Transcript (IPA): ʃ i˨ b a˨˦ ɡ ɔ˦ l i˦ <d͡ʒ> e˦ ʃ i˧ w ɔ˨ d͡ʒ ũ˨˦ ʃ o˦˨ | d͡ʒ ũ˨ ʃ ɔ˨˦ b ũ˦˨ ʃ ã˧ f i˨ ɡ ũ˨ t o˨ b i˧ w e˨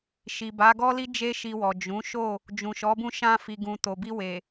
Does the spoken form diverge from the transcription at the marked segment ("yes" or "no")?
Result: no